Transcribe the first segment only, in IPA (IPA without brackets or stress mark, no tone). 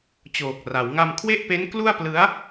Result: t͡ɕ